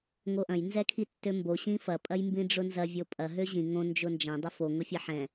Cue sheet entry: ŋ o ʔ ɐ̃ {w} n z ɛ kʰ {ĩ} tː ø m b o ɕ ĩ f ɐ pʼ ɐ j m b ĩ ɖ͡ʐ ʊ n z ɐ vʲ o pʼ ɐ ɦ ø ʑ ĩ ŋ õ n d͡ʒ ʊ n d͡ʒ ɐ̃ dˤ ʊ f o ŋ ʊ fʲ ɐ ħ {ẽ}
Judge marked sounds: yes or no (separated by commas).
no, no, no